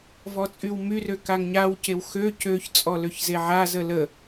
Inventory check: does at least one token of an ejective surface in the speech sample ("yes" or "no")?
yes